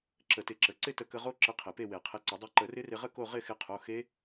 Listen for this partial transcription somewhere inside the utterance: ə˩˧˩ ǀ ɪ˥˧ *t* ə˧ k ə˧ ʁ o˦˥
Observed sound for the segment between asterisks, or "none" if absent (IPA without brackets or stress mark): t